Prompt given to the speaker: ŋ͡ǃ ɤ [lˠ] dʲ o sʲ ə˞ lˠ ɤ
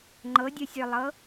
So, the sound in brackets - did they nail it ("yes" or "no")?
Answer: no